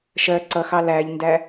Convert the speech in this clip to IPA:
ʃ ɜ ǀ ʌ x ɑ l æ ʎ n d æ

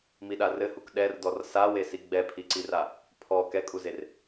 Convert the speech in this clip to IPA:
m i ɗ a r ɘ h u k ɗ ɛ r d ɔ r s a w e s i ɡ͡b ɛ pʰ i ǀ i r a | pʰ ɔ k ɛ kʼ u z e r

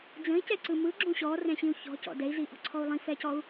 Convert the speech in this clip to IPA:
d͡z ə̃ i̯ c ɛ ǀ ɯ m ɯ ɡ͡ǁ ũ ɕ ɔ r ɛ̃ ɕ ĩ u̯ ç ɔ̤ c ɔ̰ d ɛ i̯ z i ʔ ɔ̤ ǀʰ ɔ u̯ lˠ ĩ f ɛ c ɔ u̯

